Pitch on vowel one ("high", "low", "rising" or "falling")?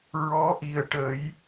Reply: rising